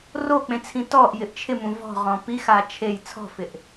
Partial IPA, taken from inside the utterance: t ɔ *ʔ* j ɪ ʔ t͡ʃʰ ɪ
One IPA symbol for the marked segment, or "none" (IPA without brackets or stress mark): ʔ